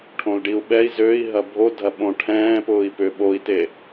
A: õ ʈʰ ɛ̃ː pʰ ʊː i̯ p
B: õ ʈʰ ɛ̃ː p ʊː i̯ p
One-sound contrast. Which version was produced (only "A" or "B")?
B